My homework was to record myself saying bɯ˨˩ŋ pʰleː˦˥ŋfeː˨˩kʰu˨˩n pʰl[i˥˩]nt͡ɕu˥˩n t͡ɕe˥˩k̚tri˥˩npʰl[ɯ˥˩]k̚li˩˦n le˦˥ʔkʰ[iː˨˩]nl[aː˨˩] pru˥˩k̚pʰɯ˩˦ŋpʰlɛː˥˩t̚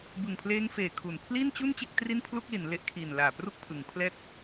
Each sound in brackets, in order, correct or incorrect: correct, incorrect, correct, correct

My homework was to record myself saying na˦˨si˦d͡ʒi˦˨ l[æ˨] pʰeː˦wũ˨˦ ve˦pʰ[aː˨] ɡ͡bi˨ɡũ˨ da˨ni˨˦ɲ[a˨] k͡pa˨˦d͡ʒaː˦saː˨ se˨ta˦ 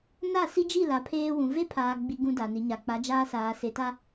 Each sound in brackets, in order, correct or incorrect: incorrect, correct, correct

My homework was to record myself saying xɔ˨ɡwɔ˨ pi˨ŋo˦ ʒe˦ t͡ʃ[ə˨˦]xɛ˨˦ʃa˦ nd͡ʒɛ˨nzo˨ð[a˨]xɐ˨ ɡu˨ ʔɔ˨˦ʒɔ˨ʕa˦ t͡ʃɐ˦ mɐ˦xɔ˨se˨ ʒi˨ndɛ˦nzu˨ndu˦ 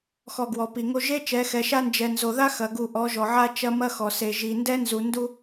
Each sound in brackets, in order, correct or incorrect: incorrect, incorrect

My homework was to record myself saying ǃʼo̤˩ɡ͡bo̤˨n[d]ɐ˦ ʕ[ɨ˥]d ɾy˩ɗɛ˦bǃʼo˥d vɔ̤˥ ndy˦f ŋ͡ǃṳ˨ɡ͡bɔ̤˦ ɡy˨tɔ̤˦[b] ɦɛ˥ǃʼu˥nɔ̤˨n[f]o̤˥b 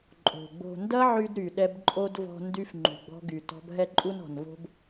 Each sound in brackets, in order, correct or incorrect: correct, incorrect, correct, incorrect

